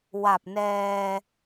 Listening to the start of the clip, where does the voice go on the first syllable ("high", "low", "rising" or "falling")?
low